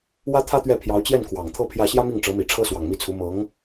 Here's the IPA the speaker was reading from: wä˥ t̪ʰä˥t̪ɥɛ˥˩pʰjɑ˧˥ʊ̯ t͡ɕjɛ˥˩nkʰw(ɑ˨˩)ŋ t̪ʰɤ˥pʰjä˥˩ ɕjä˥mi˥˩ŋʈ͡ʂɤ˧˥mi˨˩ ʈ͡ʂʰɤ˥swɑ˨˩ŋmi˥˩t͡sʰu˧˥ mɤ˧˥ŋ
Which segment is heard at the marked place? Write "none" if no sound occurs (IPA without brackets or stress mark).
ɑ˨˩